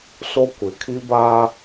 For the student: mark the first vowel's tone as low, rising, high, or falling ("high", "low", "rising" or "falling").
high